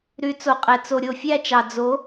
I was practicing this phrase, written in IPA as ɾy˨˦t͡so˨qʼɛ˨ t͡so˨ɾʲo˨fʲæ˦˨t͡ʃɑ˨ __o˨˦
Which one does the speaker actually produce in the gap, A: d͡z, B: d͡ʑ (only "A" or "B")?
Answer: A